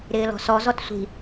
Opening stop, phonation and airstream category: plain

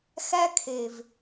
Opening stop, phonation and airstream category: aspirated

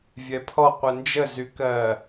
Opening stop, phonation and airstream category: aspirated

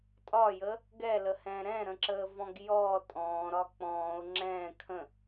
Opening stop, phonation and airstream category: ejective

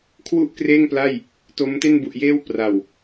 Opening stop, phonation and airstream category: aspirated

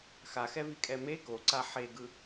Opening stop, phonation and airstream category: ejective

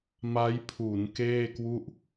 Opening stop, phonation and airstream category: aspirated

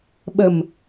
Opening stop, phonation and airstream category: implosive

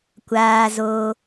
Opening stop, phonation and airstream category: plain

